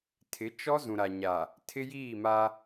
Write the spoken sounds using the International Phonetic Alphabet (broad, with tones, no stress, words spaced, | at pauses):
tʰɪ˨˦t͡ʃɔ˦ zũ˨ɾa˨ɲa˨ | tʰɪ˦jiː˦˨ma˦